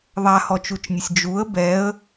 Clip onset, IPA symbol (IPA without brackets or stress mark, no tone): ðˤ